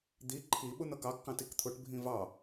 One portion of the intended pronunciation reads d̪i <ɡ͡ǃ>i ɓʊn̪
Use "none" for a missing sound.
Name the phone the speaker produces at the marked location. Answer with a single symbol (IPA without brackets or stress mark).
ǃʰ